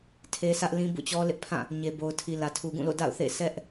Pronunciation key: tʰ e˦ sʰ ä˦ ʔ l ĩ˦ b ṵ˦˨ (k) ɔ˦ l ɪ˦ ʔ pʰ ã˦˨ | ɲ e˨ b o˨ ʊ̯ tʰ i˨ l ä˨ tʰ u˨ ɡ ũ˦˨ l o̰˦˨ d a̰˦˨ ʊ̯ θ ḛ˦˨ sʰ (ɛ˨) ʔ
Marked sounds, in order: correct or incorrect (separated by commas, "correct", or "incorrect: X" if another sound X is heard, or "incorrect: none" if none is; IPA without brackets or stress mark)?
incorrect: t͡ɕ, incorrect: ɛ˦